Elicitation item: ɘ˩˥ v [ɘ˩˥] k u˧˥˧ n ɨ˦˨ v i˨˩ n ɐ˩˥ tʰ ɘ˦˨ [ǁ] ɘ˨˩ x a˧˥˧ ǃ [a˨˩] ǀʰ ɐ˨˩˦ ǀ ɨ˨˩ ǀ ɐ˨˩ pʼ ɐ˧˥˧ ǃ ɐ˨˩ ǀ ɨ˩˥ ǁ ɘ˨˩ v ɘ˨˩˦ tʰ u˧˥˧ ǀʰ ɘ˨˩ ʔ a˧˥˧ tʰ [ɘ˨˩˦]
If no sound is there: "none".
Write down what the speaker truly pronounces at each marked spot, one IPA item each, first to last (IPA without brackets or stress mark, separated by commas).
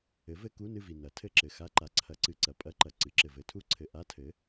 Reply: ɘ˧˥˧, ǁ, a˨˩, ɘ˩˥